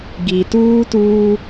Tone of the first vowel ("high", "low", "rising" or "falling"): low